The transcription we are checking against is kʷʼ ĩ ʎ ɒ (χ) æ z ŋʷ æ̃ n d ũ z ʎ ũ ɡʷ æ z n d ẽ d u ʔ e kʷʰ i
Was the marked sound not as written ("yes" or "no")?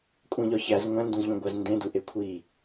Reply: yes